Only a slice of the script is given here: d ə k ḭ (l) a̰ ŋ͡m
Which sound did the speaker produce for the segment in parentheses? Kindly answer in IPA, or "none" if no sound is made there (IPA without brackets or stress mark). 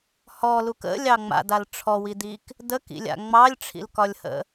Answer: lʲ